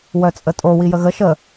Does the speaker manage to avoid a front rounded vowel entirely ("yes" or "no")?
no